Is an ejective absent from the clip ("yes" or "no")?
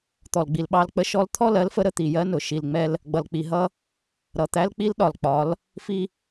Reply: yes